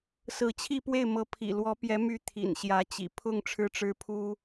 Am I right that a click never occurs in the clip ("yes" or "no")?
yes